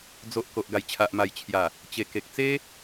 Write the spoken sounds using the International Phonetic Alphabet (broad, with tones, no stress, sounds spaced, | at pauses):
d͡z o˨ ʔ k o˨ ʔ ɡ a˨˩ j t͡ɕʰ a˨ ʔ m a˨˩ j t͡ɕʰ j a˨˩ | t͡ɕ e˨˩ k e˨ k̚ t͡s e˦